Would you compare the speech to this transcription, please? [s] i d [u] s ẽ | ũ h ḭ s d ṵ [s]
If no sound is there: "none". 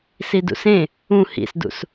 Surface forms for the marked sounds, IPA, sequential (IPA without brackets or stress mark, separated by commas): s, ṵ, s